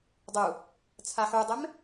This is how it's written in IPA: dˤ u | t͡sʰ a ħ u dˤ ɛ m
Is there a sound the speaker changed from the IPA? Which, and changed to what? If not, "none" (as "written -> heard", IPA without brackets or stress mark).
none